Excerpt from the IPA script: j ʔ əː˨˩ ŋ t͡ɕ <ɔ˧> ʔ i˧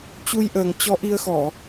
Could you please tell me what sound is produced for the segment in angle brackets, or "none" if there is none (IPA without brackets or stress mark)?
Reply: ɔ˨˦